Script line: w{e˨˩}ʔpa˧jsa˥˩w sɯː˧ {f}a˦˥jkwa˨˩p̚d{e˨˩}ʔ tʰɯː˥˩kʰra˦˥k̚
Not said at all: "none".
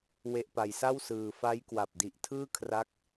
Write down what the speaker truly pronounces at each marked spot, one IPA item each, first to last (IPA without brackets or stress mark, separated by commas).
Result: e˦˥, f, i˨˩